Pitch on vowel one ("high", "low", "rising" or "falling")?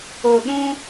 low